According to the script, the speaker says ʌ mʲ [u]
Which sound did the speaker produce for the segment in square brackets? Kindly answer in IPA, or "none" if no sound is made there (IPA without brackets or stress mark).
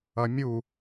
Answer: u